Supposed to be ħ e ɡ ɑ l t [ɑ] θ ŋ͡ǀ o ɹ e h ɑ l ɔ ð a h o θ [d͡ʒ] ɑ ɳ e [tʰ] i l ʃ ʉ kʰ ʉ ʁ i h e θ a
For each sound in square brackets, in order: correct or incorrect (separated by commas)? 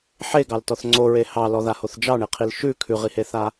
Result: incorrect, correct, incorrect